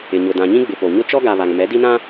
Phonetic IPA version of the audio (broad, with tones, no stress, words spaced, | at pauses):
ɪ˨ɲʊ˨ dã˨ɲĩ˦ɡ͡bɪ˨ po˨ ɲʊ˦t͡ʃɔ˦ɡa˨ βa˨ŋ mɛ˨˦di˦nã˦